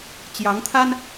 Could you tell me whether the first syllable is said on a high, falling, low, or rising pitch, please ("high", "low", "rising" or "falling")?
rising